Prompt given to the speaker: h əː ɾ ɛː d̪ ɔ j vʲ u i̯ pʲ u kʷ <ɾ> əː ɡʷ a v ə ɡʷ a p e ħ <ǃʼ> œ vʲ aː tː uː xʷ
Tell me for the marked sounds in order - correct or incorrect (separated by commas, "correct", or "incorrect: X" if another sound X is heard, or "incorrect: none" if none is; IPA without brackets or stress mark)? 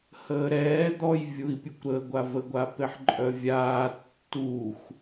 correct, correct